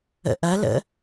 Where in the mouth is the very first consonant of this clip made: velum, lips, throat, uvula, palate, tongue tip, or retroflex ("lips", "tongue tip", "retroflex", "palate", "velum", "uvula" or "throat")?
throat